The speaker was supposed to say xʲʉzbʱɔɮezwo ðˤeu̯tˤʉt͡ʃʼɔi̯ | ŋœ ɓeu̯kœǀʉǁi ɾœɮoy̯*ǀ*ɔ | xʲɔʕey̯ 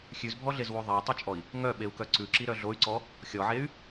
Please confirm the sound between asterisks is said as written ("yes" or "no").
yes